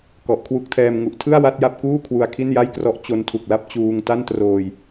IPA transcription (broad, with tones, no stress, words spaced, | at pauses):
kɔ˨˩ʔkʰwu˦˥k̚tʰɛː˧m ŋu˨˩ʔtʰɯ˥˩a̯ wa˥˩t̚ja˥˩p̚kuː˥˩ kʰwu˧a̯kʰi˥˩nja˥˩jkrɔ˦˥ʔ t͡ɕo˦˥ntʰu˨˩k̚la˥˩p̚ t͡ɕuː˧ŋta˥˩ntroː˧j